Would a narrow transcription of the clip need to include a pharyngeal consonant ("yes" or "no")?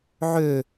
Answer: yes